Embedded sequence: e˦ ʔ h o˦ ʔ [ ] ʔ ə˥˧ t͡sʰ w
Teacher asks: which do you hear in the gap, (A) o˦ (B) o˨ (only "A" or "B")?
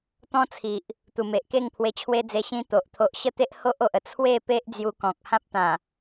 B